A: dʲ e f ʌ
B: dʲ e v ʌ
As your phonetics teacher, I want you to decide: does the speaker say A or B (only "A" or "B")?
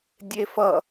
A